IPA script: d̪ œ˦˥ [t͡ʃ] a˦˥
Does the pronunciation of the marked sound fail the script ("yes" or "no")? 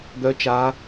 no